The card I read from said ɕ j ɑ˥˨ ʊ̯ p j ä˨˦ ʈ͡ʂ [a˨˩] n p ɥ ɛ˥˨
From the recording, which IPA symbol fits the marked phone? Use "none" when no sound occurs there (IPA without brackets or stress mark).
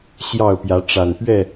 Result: a˨˩